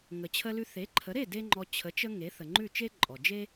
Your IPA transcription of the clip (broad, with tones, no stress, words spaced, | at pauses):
ŋə˩t͡ɕʰə˧lʉ˧ θe˩˥ǃʰə˩˥ɾe˥˩ de˥ŋ͡ǃɔ˧ t͡ɕʰə˩˥t͡ʃə˧ ŋe˩˥θə˩ŋ͡ǃʉ˥˩t͡ʃe˥ ǃʼɔ˩d͡ʒe˥